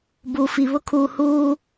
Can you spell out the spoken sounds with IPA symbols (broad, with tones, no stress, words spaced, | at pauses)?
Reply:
buː˨fi˨ βʊ˦kʰuː˨huː˦